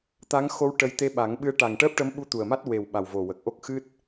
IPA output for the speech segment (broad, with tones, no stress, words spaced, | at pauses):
t̪a˧˥ŋxo˧˥w ʈə˧j t̪e˧˥ɓa˨˩˦ŋɓɨ˧˥ə̯ ʈa˨˩ŋʈəː˦˥p̚ʈə˧˥mɓu˧ t̪u˨˩ə̯ma˦˥t̚we˨˩w ɓa˨˩wvo˨˩wə˨˩k̚ʔo˦˥k̚ xɨ˦˥t̚